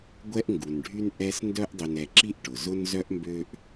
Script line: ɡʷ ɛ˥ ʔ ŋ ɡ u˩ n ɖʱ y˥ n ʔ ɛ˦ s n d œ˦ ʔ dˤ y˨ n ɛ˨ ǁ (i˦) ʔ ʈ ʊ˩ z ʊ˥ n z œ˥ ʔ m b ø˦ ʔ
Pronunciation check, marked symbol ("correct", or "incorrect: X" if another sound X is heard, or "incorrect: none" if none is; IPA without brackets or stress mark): correct